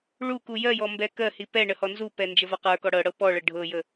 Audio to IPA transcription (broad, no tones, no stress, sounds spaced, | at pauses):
ɭ u k u j ɜ j ɔ m b ɛ k ɜ h i p ɛ ɳ ə h ɔ n z u p ɛ n d͡ʒ ə v a q ə˞ k ɔ ɽ ɤ ɽ ɤ p ɔ ɭ ə ɖʱ ɤ j ə